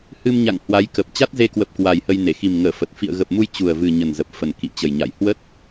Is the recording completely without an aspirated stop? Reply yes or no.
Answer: yes